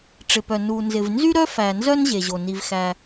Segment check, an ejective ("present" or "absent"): absent